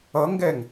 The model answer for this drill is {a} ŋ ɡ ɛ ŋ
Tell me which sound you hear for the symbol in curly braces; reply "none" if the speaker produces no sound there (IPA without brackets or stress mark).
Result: ʌ